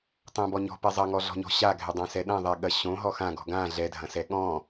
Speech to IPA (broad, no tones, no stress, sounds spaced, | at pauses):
tˤ õ b ɔ ɲ ɔ̤ p ɛ zˤ ɐ ŋ ɔ ɮ ɔ̤ ɲ ɔ̤ ɕ a ɡʱ ɛ dˤ ã s ɛ ɗ ɐ̃ ðˤ ɛ ɠ ɐ ɕ õ ɦ ɔ x ã ɡ ɔ̤ ɡ ã ɮ ɛ dʱ ɐ̃ s ɛ ɠ ɔ̃